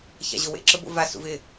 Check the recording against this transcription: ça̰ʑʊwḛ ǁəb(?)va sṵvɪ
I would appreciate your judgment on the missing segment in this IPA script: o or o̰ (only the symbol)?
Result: o̰